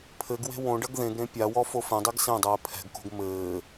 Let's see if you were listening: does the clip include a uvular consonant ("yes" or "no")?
no